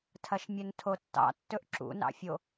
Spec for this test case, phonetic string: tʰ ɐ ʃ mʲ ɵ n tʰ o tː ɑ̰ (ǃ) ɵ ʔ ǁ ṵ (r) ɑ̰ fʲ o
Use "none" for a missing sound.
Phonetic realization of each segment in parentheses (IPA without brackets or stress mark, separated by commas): tː, n